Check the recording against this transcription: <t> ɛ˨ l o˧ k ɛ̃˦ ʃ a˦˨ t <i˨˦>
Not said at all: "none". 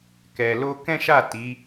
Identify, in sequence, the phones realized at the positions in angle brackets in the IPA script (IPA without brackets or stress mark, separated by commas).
k, i˨˦